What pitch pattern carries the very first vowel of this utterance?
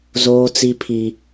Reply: high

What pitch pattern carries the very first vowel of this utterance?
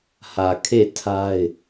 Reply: low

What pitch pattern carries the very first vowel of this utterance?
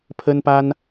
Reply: high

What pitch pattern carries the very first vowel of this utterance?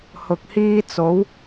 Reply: low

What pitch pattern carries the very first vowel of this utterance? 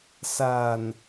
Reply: low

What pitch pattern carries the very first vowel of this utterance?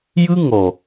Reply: high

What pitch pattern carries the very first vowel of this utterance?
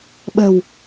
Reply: low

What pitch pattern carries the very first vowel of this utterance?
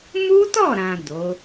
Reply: high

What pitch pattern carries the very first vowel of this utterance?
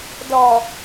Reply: low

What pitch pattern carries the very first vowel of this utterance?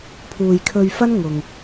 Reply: low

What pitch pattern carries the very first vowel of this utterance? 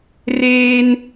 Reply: high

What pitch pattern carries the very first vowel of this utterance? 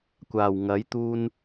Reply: low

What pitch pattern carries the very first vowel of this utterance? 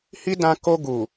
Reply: high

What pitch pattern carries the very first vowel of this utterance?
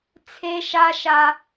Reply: high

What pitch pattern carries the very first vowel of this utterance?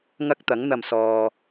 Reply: high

